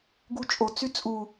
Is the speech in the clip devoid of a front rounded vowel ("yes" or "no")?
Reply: no